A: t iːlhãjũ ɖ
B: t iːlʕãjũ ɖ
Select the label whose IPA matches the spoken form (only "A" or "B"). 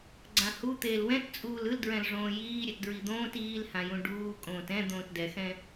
A